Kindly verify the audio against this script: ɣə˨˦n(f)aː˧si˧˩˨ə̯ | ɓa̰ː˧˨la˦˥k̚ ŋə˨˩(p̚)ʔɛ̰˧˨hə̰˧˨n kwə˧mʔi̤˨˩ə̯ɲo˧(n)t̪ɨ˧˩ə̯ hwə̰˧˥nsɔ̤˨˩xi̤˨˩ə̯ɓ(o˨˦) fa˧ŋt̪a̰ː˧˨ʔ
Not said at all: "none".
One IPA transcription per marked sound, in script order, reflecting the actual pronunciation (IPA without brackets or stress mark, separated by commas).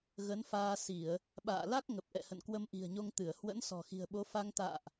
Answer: f, p̚, ŋ, o˨˦